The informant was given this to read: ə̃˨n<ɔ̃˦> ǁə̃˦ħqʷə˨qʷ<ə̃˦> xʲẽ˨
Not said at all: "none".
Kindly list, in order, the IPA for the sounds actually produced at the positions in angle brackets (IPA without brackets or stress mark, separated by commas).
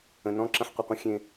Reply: ɔ̃˦, ə̃˦